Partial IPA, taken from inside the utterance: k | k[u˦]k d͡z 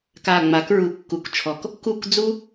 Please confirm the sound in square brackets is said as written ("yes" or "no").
no